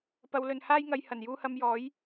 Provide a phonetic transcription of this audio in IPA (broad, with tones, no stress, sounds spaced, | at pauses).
p ɐ˨˧ w l ɵ˨ n h aː˥ j ŋ ɐ˧ j h ɐ˨˩ n j uː˧ h ɐ˧ m j ɔː˨˥ j